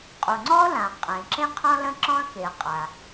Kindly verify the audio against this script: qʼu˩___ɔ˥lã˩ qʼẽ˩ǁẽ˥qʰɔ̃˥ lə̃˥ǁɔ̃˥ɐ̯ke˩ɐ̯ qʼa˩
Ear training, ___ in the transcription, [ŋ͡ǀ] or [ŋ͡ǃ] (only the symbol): ŋ͡ǀ